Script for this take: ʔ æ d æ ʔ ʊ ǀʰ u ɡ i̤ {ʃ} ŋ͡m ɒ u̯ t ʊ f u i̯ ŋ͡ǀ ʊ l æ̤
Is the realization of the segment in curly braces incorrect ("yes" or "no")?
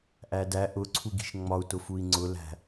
no